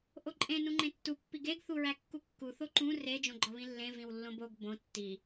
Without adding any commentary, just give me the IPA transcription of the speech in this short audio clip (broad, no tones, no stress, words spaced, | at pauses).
ʔoǃʼẽ nũŋ͡ǃẽtːu pːiɡeɡ θuɹækːukːu θoǃũ re d͡ʒõɡ͡ǃɒβĩlːẽ vĩwlːõboɡ bõ tːi